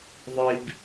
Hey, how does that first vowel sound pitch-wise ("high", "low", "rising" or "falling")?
low